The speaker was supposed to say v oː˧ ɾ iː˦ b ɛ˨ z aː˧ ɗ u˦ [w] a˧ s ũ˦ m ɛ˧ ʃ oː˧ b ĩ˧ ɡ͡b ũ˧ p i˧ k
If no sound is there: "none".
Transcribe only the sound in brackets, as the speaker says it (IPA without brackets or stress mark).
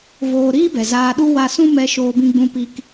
w